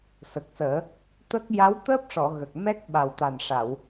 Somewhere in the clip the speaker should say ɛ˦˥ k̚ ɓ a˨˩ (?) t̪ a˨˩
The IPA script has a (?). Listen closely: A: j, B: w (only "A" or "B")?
B